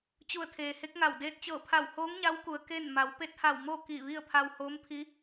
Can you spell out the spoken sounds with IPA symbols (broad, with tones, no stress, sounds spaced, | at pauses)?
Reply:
t͡ɕ u˧˩ ə̯ t̪ʰ eː˩ h e˧˥ k̚ ŋ a˧˩ w d eː˧ t̚ t͡ɕ ɤː˧˩ pʰ a˧˩ w h oː˧˥ ŋ ɲ a˧˥ w k u˩ ə̯ k e˥˨ n m a˩˧ w p e˧˥ t̚ h a˧˩ w m o˥˨ k i˧˩ ʋ i˥˨ ə̯ pʰ a˧ w h oː˧˥ m pʰ i˧˥